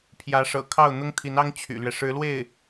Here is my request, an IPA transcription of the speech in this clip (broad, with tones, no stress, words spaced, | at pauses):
pʰjä˧˥ʂɤ̰˨˩kʰɑ˥˩ʊ̯ n̪ʊ˥ŋt̪ʰi˧˥nɑ˥ŋ t͡ɕʰy̰˨˩lɥɛ˦ ʂɻ̩˧˥lwe˥˩ɪ̯